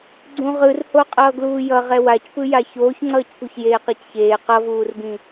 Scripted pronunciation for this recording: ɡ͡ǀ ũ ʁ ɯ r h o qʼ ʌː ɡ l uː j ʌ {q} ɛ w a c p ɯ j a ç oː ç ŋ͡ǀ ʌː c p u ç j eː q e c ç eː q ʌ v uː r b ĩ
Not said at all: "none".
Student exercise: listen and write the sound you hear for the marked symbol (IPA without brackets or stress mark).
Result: ʁ